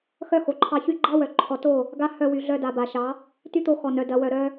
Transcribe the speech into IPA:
x œ˦ x o˨ ǃʰ ɑ˧ ç y˧ ɡ͡ǃ ɑ˦ w œ˨ ǃʰ ɔ˨ t o˦˨ | ɡ a˧ h œ˧ w y˨ ɮ œ˧ d a˨ b a˨ ʃ ɑ˨˦ | t y˦ t̪ o˧ x ɔ˨ n œ˨ d ɐ˨ w œ˨ ɾ œ˧

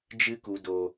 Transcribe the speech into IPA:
d͡ʒ ɨ˧ k u˨ d o˨

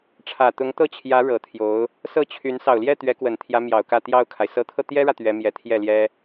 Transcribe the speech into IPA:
ʈ͡ʂʰ ä˨˩ t̪ ʊ˧˥ ŋ t̪ ɤ˥˩ t͡ɕʰ j ä˧˥ ɻ ɤ˨˩ t̪ʰ j o˧˥ ʊ̯ | s ɤ˥˩ t͡ɕʰ y˧˥ n s ɑ˨˩ ʊ̯ l j ɛ˥˩ t̪ ɥ ɛ˧˥ k w ə˨˩ n t̪ʰ j ä˧˥ m j ɑ˨˩ ʊ̯ k ä˥˧ t̪ j ɑ˥˩ ʊ̯ kʰ a˩ ɪ̯ s ɤ˧˥ t̪ʰ ɤ˧ t̪ j ɛ˥ ɻ ä˨ t̪ ɥ ɛ˧˥ m j ɛ˧˥ t̪ʰ j ɛ˥˩ l j ɛ˥

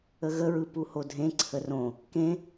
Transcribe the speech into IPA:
ə ɣ ə ɹ ɯ p u h o dʱ ẽ ǀʰ ə r õ | k ẽ

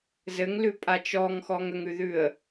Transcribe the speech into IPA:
z ɘ ŋ l ʉ pʼ a t͡ʃ ɔ ŋ x ɔ ŋ ə ŋ ʉ ð ʉ ə̯

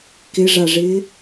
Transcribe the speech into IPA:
k ɪ ʐ a ʐ ɪː

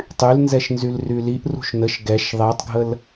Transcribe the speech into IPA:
tˤ y l n z ɛ ʃ n z y l r y l i ʔ r ṳ ʃ n ə ʃ ɡ ɛ ʃ ðˤ ɛ tˤ ɡʱ ə l

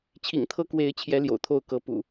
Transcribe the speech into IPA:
t͡ɕʰ ḭ˨˩ ŋ t̪ʰ ɤ˦ k w e˨˦ ɪ̯ t͡ɕʰ j ɛ˨˦ l j o̰˨˩ ʊ̯ t̪ʰ o˦ ʊ̯ k ɤ˨˦ p ṵ˨˩

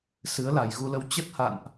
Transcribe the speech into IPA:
s ɨ˨˦ ə̯ l a˨˩ j ɣ u˧ l ə˧ w t͡ɕ ə˦˥ t̚ h a̰˧˨ n ʔ

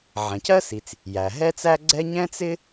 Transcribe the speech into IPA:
ʕ ɛ̃˩ c ɜ˥ s i˩ t͡s | j æ˩ ɦ ɛ˥ t͡s æ˥ ɡ͡ǀ ɛ˥ ɲ ɛ̃˥ t͡s ɪ˥

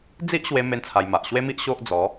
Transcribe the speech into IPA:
d͡z i˦ ʔ ɕ w e˧ m e˦ n t͡sʰ a˧ j m a˨ ʔ ɕ w e˦ m i˦ ʔ ɕ o˦ ʔ d͡z ɔ˨˦

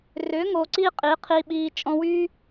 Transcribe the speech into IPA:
r ʏː˨˦ ŋ o˨ ǀ iː˦ qʼ iː˨˦ qʰ iː˧ ɓ iː˧ t͡ʃʼ ɔ̃˧ w yː˦

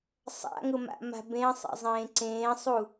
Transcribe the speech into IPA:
sˤ a̰ ŋ ʊ m a̰ m a̤ b ẽ sˤ ɛ̰ zˤ ẽː ǀ ẽː sˤ u

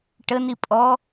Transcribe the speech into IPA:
ʈ ə n i pʼ ɔ

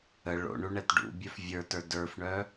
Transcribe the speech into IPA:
ə ɭ o̰ ɳ u ɳ ɛ t ɖ ṵ bʲ œ f vʲ ə˞ t ə˞ d ə˞ f ɳ œ

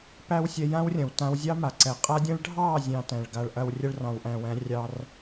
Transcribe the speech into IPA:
p æ˦ w sʲ ɛ˧ j ã˦ w rʲ ɐ̃˨ w t ã˧ w zʲ ɑ˦ m a˨ ǀ ɛ˨ qʼ a˦ dʲ ɛ̃˦ ɭ ɖʱ ɑ˦˨ zʲ ɑ̃˧ t æ̃˨ ɭ ɡ a˧ ɭ ʔ ɐ˧ w rʲ ɐ˦ ɭ r ɑ̃˨ w ʔ æ̃˨ w æ̃˨˦ rʲ ɑ˧ r

